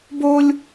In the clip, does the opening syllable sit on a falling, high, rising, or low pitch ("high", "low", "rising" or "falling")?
high